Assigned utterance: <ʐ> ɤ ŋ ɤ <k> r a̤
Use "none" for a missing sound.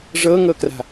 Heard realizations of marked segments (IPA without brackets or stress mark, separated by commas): ʐ, k